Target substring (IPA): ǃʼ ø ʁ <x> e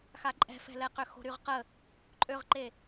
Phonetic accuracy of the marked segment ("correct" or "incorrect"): incorrect